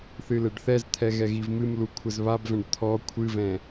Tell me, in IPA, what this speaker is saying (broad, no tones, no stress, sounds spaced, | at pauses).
θ ɨ l ɘ ɖ θ ɛ z t̪ʰ ɛ ɣ ɛ ɣ i v m ɨ m l u kʷʰ ɘ z β a b v ɛ̃ ɖ t̪ʰ ɔ kʷʰ ɨ v ɛ̃